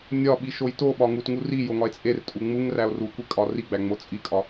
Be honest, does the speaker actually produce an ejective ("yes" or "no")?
yes